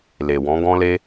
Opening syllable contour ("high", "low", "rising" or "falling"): low